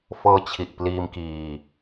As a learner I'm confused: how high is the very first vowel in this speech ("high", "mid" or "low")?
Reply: mid